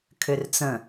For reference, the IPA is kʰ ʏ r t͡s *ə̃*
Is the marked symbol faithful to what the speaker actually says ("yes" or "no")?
yes